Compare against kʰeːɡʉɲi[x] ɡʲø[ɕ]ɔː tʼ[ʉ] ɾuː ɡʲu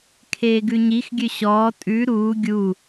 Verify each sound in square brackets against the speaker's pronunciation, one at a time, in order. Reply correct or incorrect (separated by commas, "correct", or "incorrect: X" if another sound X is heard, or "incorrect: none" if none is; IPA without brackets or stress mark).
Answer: correct, correct, correct